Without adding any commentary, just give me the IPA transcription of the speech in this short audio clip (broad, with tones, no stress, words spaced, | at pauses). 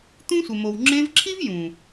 t̪ũ˦sʷe˨mo˨w ŋ͡ǁẽ˧vǁʰi˦v jũ˨